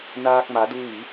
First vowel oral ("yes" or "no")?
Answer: yes